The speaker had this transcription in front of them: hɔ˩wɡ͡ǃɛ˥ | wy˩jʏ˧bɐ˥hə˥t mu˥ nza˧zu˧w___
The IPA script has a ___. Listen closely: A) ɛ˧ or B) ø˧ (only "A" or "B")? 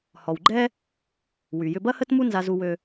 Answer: B